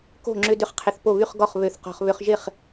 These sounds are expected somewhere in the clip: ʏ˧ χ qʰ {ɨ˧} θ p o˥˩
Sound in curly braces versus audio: incorrect: ɪ˧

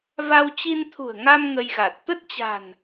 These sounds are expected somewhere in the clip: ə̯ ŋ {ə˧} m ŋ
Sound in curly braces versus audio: incorrect: a˧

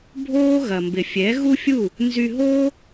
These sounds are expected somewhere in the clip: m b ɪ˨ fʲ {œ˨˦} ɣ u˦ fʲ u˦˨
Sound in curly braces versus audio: incorrect: ɛ˨˦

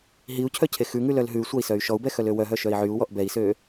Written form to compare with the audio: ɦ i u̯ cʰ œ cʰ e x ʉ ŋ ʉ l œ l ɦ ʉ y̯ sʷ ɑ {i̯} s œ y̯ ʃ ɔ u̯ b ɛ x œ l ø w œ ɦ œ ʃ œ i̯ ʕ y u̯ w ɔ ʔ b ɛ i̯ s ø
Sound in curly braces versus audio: correct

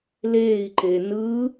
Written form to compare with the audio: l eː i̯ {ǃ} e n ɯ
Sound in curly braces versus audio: correct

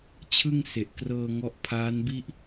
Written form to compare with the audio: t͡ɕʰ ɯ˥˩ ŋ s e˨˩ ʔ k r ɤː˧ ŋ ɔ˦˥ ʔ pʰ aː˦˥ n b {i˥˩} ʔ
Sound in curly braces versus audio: correct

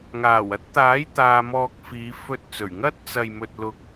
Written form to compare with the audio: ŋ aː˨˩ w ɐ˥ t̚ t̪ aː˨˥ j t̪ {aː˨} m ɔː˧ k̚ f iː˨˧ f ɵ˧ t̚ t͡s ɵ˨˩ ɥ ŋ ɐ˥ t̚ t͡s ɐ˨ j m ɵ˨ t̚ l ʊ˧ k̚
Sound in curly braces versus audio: incorrect: aː˧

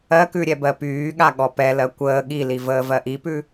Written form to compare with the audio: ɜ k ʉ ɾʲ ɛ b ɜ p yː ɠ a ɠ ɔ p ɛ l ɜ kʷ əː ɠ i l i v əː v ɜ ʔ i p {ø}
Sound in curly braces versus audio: incorrect: ʉ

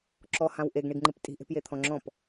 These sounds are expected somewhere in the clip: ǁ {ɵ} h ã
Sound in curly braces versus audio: incorrect: ɔ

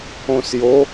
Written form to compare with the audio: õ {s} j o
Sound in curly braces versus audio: correct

